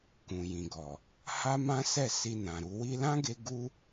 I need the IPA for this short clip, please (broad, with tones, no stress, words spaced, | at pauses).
kũ˨jĩ˨ɡɔ˨ | ha˦mã˦sɛ˦˨ si˧nã˨ɾu˧ wi˧lã˦ɡe˧ ɡu˦